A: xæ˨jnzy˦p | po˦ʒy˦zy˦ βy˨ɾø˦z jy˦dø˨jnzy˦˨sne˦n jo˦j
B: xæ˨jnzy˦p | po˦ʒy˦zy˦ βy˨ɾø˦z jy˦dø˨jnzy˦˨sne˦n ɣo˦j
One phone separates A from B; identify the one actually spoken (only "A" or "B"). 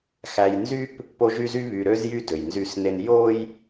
A